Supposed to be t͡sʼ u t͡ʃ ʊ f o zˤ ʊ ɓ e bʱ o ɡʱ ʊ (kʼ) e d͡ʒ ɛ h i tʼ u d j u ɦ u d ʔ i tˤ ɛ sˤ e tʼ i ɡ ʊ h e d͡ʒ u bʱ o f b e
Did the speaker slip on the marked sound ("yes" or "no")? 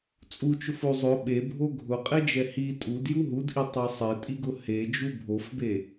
yes